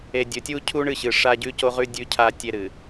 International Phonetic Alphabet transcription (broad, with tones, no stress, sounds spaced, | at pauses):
e˨ dʲ ɵ˨ tʲ u˦ cʰ u˦ ɳ ɨ˦˨ ɕ ɨ˨ ʂ a˦ ɟ ʉ˦ c o˦ ʁ ʉ˦ dʲ ʉ˦ cʰ a˦ tʲ e˦ ɾ ɨ˨